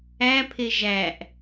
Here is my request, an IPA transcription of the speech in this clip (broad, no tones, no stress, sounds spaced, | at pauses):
æ pʰ e ʒ æ ʔ